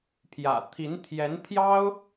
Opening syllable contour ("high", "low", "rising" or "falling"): low